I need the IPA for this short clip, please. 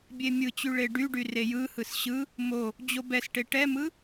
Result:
bʲ e mʲ ɯ t͡ɕ y ɭ e ɖ y ɖ y r e j ɯ h ɯ s ɕ ɯ | m o | d͡ʑ o b ɛ s ʈ e ʈ ɛ m ɯ

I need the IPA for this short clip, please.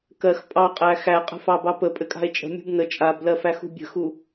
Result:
k ɜ x pʼ ɑ qʼ æ x æ qʼ ə̤ f ɑ b ɑ p ə pʼ ɘ kʼ a̤ e̯ t͡ʃʼ ə̤ mʲ ṳ b n ə t͡ʃʼ a b l ɜ f æ x ṳ bʲ ə̤ x u

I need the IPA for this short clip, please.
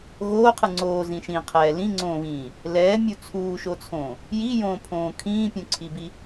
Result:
ɣ oː qʰ ɯ ŋ͡ǀ oː z ĩ ʃ ĩ qʰ ɛː l ĩ ŋ͡ǀ õː β ĩː | l ɛː mʲ u t͡sʰ uː ʃ o t͡sʰ õː | j i j õː pʰ õː kʰ ĩː pʲ ũ ǀʰ i b i

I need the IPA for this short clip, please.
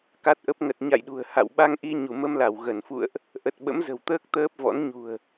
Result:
k a˦˥ t̚ ʔ ə˦˥ p̚ ŋ ə˨˩ t̚ ɲ a̰˧˨ j ɗ ṳ˨˩ ə̯ h a̰˧˨ w ɓ a˧ ŋ ʔ i˧ ɲ u˧˩ m ə˧ m l a˧˩ w ɣ ə˧˩ n f ṵ˧˨ ə̯ ʔ | ʔ ə˨˩ t̚ ɓ ə̰˧˥ m z ə̤˨˩ w t̪ əː˦˥ k̚ t̪ əː˦˥ p̚ v ɔ̰˧˥ n ɲ ṳ˨˩ ə̯

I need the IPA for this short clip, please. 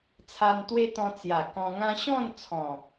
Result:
t͡sʰ a˧ n t̪ w e˦ t̪ ɔ̃˧ t͡s j a˨˩ k ɔ̃˧ ŋ ã˦ ɕ ɔ̃˥˧ n t͡sʰ ɔ̃˨˩

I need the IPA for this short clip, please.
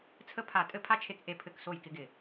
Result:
t͡sʰ ə˥ pʰ a˦˨ tʼ ɘ˥ pʰ a˥ t͡ʃʰ e˦˨ k ʔ e˦˨ pʰ ɘ˦˨ k s o˦˨ j k ɪ˥ ɡ ɪ˦˨

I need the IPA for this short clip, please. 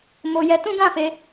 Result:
m o˧ j ɛ˧ t ũ˦ ɡ ã˦˨ f e˧

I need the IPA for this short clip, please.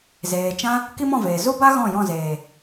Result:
z eː˨ t͡ʃ ã˦ | k i˦ m ɔ̃˦˨ v eː˨ z u˦ b a˦ ɣ ɔ̃˦˨ j ɔ̃˦˨ z eː˨

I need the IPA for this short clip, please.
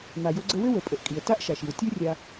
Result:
m a˩ j o˧ ɡ͡ǀ ə˧ w ɘ˥ w ə˩ pʼ ə˩ ʔ kʼ i˩ ə̯ t a˥ ʔ ʃ a˩ ʃ i˩ w tʲ o˥ rʲ a˧

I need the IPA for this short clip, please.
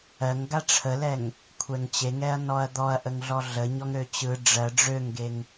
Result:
ɜ ŋ ɡ a ʈ͡ʂʰ ə l ɛ ŋ | kʷʰ ɛ ŋ t͡ɕ e ŋ ɛ ɐ̯ n ɔ ɐ̯ d̪ ɔ ɐ̯ ʔ ə ŋ ɮ ɔ ɮ ə ɲ ɔ ŋ ɾ ø t͡ɕ ɯ ɖ͡ʐ ɜ ɖ͡ʐ ø ŋ ɡ e ŋ

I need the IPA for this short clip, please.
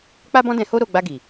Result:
k͡p a˦ b ɔ̃˦ d ɛ̃˧ h o˦ ɾ o˦˨ ɡ͡b a˧ ɡ i˨

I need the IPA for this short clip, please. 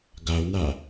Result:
ɡ a o̯ n a

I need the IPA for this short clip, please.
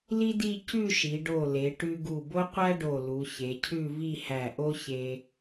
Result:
l i˥ d i˥˧ c ʉ˥˧ ʃ i˩˧ ɖ o˧˩ l e˩˧ ʈ ʉ˧ ɡ u˧˩ b o˥ qʷ æ˥ ɖ o˧˩ l u˩˧ ç e˩˧ cʰ ʉ˥˧ v i˥˧ h æ˧˩ ʔ o˥ ç e˧

